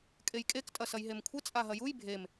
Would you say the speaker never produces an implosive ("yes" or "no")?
yes